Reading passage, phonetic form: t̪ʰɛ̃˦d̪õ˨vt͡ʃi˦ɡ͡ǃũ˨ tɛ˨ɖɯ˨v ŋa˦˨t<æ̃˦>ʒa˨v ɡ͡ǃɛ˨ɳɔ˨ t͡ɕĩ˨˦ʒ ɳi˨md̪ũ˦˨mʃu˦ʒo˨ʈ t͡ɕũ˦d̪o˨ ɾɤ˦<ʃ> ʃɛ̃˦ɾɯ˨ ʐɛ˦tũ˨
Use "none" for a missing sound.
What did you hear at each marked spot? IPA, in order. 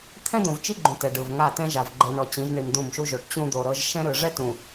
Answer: ɛ̃˦, ʒ

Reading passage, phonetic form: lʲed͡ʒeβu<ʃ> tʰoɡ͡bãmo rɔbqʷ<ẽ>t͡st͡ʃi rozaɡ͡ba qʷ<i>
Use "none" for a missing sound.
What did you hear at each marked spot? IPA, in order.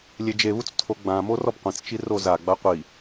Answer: t͡s, ẽ, i

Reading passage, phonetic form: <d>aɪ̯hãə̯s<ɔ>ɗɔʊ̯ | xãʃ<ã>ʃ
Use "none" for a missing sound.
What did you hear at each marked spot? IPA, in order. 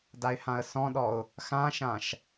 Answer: d, ɔ̃, ã

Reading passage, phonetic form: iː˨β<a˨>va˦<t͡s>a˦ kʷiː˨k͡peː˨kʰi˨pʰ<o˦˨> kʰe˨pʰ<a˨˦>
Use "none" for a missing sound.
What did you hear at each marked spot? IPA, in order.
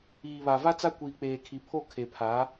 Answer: a˨, t͡s, o˦˨, a˨˦

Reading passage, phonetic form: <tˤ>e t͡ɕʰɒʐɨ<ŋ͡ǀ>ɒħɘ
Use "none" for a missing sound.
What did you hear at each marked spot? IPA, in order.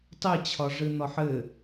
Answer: tˤ, n̪

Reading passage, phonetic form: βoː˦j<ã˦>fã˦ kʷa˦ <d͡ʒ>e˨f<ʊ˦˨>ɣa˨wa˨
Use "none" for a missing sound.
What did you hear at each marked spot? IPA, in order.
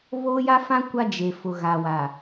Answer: a˦, d͡ʒ, ʊ˨

